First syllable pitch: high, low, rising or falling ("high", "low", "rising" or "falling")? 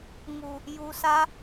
low